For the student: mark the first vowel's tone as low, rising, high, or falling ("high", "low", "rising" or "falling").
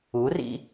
rising